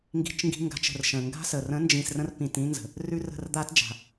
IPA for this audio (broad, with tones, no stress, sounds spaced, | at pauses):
ŋ ɡ i̤˧ t͡ʃ ŋ ɡ i̤˧ ŋ ɡ a̤˨˦ t͡ʃ ə̤˨ r ʃ ə̃˨ ŋ ɡ a̤˦ s ə˨ r ə̃˨˦ n d͡ʒ ĩ˨ s r ə̃˧ r p ĩ˨ t ĩ˧ n z ə̤˨ | r ʉ˧ r ə̤˦˨ r d̪ a˦ t d͡ʒ a̤˨